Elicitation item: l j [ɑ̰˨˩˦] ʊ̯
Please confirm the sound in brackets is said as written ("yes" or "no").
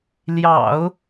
yes